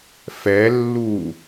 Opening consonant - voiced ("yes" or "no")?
no